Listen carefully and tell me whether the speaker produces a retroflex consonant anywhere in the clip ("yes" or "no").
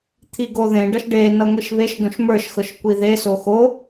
yes